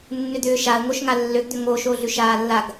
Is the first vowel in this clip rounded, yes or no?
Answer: yes